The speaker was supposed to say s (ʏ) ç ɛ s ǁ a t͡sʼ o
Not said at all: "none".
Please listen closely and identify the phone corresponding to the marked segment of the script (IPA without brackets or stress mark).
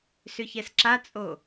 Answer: ʏ